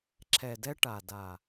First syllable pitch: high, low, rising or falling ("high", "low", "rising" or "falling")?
low